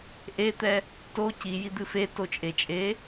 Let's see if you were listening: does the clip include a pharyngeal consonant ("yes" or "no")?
no